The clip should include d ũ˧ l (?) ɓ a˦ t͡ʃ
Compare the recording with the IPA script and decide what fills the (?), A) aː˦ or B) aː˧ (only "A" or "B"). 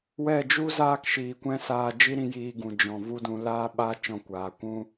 A